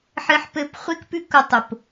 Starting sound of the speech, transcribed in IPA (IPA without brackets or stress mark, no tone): ħ